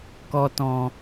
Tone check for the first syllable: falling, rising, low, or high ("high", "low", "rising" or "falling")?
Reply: low